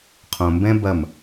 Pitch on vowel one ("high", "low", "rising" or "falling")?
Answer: low